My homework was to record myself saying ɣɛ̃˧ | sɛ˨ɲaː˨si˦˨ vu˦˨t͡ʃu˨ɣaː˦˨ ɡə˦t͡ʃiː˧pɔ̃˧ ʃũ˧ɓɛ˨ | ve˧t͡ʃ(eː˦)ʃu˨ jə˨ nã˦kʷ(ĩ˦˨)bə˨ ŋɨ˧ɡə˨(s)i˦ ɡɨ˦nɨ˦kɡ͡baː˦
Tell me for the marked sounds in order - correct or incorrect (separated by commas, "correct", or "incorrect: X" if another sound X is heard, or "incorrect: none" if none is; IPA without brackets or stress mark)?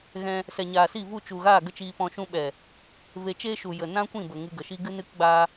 correct, correct, incorrect: ʃ